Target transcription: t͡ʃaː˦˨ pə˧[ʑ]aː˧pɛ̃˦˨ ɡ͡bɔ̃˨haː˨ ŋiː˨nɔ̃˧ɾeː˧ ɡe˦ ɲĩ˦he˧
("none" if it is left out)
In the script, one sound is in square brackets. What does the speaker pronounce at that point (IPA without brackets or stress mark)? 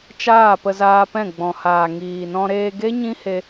z